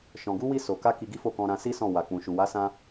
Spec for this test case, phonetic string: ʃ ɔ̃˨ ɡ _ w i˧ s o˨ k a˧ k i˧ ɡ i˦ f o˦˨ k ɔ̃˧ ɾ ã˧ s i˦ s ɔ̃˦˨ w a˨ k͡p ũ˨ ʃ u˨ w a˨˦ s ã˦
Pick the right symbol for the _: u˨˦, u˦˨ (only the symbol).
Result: u˨˦